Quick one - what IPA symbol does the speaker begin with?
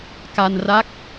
k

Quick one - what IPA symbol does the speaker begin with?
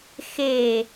x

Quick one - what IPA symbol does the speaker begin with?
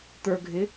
t̪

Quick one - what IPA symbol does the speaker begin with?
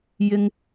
j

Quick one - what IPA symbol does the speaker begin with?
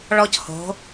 ɭ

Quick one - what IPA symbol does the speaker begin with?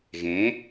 ɣ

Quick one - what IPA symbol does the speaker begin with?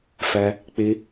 f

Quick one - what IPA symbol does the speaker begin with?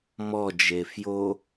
m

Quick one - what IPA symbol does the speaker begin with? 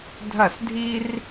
dʱ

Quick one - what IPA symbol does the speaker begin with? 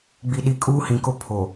ɡ͡b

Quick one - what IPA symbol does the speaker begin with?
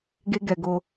ɡ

